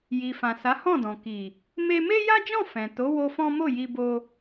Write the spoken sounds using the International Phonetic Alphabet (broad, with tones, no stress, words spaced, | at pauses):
ji˨fã˨sa˨˦ hɔ̃˦˨dɔ̃˨ ki˨ | me˧me˦ja˦d͡ʒɔ̃˦˨ fɛ̃˨ to˨˦wo˧ fɔ̃˦ mo˦˨ji˧ bo˧